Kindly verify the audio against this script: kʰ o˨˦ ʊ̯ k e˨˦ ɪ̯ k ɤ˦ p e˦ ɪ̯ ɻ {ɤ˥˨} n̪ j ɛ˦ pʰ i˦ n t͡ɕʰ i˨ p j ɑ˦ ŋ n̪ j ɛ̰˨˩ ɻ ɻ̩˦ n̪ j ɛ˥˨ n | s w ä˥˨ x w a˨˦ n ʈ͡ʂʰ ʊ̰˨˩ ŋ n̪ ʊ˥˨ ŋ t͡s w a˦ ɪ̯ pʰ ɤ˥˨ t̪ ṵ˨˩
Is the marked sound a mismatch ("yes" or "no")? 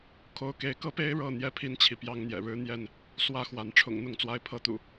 no